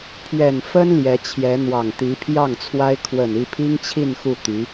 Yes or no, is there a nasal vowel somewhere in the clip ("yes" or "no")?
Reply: no